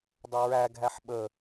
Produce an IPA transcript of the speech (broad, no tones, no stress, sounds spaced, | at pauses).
dˤ ə ɹ æ ɡʱ æ ħ ɓ ə